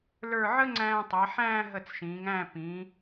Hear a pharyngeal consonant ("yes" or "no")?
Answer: yes